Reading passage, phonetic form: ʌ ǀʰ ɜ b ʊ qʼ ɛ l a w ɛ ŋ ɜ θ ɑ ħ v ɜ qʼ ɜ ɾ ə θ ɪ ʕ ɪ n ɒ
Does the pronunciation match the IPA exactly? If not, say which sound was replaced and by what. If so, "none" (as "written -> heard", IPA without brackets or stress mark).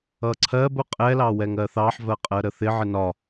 a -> ɑ